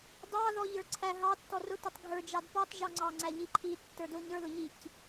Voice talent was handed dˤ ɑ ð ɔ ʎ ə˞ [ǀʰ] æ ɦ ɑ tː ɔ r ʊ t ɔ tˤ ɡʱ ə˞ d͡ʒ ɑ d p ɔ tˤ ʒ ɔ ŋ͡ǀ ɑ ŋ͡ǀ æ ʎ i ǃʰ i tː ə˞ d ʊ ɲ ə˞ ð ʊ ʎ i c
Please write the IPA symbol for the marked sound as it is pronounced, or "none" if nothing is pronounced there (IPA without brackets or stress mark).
ǀʰ